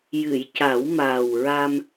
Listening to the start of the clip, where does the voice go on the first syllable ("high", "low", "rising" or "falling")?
low